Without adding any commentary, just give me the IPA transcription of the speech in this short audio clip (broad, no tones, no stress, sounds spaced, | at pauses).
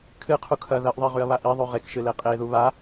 kʰ ɨ qʰ u kʰ ɐ ð ɐ ʔ ðˤ i ʁ ʉ ɐ̯ β a ʔ i ðˤ ʉ ʁ e k ʃ ɨ l e qʼ e ð u β a